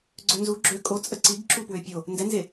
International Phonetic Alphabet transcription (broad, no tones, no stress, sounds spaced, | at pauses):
ɡ͡ǀ œ n z u ɡ͡ǁ ø kʼ o t͡sʼ ə ǀ i ɡ ǁ u p w ø pʲ o | n d ɛ n z e